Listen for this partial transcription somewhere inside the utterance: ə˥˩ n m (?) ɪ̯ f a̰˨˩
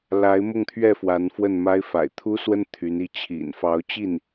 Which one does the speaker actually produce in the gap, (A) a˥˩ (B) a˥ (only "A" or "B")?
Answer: B